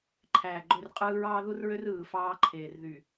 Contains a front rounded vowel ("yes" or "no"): yes